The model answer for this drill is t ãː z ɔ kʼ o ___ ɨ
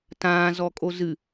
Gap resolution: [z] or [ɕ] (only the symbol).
z